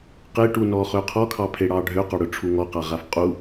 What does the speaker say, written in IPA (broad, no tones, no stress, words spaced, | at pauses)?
qeʈunɔχø qʰɔkʰɑpʰeɽɑ ɖʱøqɔɽʊʈ͡ʂʰu ŋɔqaʁaf qʼu